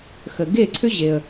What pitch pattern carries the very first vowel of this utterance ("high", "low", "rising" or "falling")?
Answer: low